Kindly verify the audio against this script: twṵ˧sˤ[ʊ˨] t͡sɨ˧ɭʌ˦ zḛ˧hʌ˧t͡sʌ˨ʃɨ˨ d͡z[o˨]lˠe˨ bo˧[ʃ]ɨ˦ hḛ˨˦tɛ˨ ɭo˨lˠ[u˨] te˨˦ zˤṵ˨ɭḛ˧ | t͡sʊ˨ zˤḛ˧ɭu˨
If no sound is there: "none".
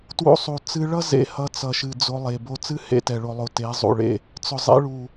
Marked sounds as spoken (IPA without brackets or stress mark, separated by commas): u˨, o˧, t͡s, o˨